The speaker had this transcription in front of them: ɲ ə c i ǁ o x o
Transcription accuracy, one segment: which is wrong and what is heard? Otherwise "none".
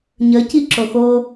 none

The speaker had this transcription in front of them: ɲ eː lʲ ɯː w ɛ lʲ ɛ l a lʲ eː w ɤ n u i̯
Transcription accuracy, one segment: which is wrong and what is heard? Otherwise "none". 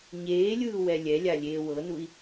l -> lʲ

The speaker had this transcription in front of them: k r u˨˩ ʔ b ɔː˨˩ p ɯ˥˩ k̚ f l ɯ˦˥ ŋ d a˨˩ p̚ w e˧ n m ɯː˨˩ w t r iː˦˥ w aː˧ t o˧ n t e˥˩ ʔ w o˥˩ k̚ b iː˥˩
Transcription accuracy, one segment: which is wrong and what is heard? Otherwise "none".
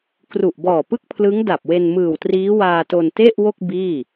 f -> pʰ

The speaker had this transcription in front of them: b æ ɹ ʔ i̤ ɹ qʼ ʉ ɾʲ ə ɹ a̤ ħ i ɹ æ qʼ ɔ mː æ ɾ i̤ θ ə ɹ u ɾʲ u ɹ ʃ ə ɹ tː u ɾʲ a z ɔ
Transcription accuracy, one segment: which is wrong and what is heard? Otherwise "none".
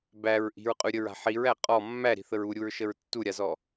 none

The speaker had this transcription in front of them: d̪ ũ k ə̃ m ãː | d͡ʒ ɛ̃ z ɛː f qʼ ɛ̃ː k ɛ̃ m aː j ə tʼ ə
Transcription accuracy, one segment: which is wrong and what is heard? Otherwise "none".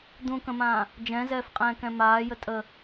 none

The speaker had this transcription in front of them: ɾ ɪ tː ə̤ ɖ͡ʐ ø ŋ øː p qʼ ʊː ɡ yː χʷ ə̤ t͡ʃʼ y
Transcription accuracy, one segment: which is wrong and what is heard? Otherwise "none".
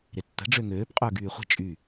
none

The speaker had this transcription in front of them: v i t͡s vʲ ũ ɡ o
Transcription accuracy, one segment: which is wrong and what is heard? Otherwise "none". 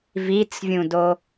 ɡ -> d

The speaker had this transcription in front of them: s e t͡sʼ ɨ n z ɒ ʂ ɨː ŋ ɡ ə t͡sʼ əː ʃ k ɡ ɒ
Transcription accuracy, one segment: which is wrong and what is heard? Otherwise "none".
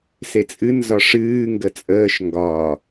k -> ŋ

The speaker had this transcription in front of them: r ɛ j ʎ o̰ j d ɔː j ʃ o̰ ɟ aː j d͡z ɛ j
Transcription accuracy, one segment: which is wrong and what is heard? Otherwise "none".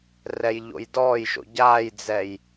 none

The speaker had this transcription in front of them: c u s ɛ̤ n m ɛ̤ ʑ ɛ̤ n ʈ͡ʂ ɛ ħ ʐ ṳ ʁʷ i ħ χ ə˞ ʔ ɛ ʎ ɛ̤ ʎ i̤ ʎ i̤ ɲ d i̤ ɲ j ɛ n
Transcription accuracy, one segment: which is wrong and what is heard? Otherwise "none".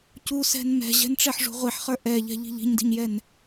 none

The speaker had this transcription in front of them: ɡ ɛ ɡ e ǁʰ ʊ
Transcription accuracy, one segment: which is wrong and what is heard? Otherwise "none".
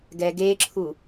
ʊ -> u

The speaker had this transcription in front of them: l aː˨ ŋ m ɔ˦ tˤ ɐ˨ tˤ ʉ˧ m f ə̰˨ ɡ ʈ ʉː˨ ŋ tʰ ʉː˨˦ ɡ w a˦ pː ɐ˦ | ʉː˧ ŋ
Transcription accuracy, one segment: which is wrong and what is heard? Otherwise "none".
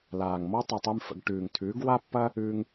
none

